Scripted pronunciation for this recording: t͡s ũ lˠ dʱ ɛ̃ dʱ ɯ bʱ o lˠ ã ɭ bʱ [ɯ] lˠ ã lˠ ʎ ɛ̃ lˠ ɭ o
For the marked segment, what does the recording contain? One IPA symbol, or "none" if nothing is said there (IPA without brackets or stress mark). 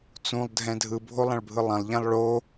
ɯ